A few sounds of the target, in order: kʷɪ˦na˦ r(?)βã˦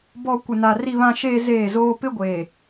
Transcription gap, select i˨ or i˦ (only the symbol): i˦